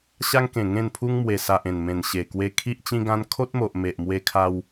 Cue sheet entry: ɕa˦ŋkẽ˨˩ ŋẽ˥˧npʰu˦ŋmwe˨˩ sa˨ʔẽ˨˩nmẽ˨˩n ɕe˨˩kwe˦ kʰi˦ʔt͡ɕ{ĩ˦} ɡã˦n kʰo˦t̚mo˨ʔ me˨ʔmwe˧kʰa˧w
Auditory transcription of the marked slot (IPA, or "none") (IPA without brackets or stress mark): ĩ˦